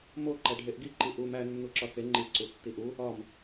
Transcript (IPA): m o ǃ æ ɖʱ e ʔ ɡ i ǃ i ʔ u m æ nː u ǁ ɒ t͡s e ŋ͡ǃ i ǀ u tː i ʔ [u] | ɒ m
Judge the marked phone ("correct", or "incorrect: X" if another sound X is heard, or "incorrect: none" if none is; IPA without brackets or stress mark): correct